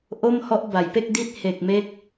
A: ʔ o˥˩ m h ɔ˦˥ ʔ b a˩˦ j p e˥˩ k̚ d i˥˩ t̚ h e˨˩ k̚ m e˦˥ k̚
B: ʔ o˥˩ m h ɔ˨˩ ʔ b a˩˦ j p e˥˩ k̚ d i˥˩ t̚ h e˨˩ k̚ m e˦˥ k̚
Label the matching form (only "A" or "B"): A